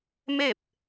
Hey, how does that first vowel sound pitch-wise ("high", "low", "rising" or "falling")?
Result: falling